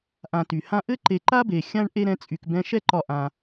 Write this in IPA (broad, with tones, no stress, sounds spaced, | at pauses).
ʔ ã˨ t y˩ h ã˥ ʔ ɘ˥ ǃ e˨ ǃ a˥ b e˩ xʲ ã˥ ɳ ʔ e˥ ɾ ɛ̃˦ t͡sʼ y˨ k b ɛ̃˦ ʃ ɛ˥ ǃ ɒ˨ ʔ ã˩